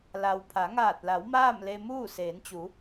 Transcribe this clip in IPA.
l a˩ w pʰ a˩˧ ŋ aː˧˩ t̚ l a˩˧ w m aː˥˨ m l e˧ m uː˥˨ s eː˩˧ n t͡ɕ u˩˧

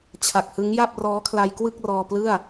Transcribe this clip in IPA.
t͡ɕʰ a˨˩ k̚ h ɯ˦˥ ŋ j a˥˩ p̚ r ɔː˦˥ kʰ l a˧ j k w ɯ˥˩ k̚ r ɔː˧ p l ɯ˥˩ a̯

